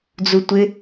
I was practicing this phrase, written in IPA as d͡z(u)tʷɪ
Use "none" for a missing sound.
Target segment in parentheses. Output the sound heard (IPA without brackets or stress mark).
u